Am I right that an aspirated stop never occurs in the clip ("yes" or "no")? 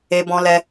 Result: yes